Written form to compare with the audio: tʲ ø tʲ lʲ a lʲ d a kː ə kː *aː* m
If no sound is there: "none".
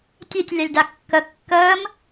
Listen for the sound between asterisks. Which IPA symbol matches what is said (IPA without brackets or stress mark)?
əː